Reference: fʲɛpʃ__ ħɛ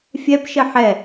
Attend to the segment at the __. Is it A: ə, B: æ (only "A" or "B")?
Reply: A